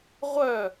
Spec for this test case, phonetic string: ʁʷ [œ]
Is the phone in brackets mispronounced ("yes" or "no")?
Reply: no